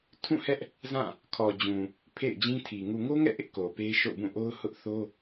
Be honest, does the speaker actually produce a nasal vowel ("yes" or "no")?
yes